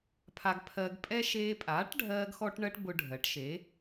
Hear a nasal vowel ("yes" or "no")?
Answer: no